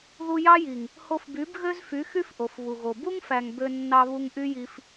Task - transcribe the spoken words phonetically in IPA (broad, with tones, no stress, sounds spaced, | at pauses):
ð u˧ j ɑ˦ j i˨ ŋ | h o˧ f b y˨˦ b ɣ ø˦ z f y˨˦ x y˦ f ʔ o˨ f β u˨ ɣ o˨ b u˦ ŋ f æ˨ ŋ b ø˧ nː ɑ˧ β u˧ ŋ ʔ y˦ j i˧ f